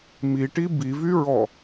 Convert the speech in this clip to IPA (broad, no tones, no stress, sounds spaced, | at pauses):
m i ʈ i b i v y ɹ ɔ